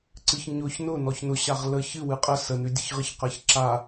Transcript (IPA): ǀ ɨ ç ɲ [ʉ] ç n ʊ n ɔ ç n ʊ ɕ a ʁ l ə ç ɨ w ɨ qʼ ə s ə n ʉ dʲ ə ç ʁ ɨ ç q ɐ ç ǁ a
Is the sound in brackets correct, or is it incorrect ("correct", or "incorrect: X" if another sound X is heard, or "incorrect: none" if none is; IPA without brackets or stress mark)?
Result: incorrect: ʊ